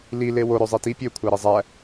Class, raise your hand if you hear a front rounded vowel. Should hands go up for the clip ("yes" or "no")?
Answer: yes